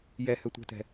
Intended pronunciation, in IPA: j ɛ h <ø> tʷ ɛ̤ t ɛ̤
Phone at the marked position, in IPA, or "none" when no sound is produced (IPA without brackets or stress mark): ø